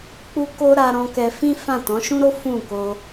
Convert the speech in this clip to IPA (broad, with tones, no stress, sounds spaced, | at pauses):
k͡p u˦ k o˦ ɾ a˧ ɾ ɔ̃˧ k ɛ˧ f ĩ˦ f ã˦˨ t ɔ̃˨˦ ʃ ũ˦ ɾ o˦ f ũ˦˨ k o˧